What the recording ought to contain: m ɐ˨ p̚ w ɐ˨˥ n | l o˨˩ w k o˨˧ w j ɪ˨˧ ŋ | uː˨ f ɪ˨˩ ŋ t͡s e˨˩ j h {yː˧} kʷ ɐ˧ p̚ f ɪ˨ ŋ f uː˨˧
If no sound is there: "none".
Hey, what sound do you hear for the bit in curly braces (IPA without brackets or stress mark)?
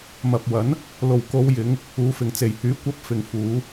yː˨˥